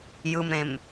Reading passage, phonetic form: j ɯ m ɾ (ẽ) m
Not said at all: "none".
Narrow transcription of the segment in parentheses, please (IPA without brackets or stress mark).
ẽ